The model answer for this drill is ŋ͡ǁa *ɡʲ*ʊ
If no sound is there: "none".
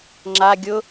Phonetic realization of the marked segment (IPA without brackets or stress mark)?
ɡʲ